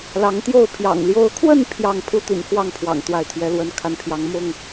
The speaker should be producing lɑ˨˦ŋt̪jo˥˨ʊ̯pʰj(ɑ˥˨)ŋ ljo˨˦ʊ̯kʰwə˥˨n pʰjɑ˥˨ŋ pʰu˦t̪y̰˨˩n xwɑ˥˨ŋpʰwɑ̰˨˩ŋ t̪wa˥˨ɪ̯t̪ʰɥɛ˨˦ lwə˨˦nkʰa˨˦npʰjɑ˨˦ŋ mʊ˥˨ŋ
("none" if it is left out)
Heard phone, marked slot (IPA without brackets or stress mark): ɑ̰˨˩